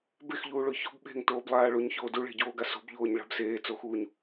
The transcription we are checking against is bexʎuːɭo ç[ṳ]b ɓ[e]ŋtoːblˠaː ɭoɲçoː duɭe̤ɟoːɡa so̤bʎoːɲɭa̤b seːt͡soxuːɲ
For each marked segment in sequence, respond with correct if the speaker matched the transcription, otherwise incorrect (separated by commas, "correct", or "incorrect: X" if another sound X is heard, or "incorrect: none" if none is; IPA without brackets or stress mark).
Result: incorrect: o̤, incorrect: e̤